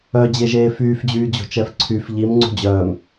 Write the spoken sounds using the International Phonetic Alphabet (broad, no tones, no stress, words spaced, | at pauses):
œd͡ʑeʒeː fyːfd͡ʑyːd͡ʑo̤t͡ʃɛf ǀʰyf ʎimŋ͡ǀṳ d͡ʑœːm